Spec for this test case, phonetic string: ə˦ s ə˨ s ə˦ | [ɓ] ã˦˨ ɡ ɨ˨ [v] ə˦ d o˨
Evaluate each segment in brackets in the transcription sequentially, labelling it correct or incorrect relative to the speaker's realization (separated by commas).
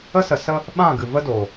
correct, correct